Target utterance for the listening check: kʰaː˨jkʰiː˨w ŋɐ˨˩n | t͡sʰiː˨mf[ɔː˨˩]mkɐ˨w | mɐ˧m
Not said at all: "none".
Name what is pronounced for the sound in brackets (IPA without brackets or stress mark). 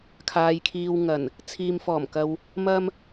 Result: ɔː˨˩